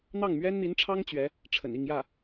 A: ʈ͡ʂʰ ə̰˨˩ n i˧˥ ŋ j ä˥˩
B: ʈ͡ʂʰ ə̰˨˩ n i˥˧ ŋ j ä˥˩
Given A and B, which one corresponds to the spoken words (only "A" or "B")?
B